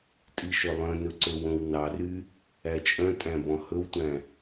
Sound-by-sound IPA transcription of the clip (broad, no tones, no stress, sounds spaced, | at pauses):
tʼ i ʃ ɵ lˠ œ̃ n ɵ ǀ ɵ w õ w n ɑ r y | æ t͡ʃʼ œ̃ tʼ æ̃ b ɔ̃ h ɵ w tʷ æ̃